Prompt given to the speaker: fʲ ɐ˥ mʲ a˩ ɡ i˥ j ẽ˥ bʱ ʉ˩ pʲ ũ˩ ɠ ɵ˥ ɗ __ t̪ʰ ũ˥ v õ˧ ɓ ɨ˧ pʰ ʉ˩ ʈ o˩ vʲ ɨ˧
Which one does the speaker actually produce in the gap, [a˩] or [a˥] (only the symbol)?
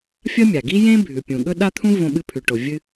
a˥